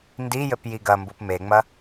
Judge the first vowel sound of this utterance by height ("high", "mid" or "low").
high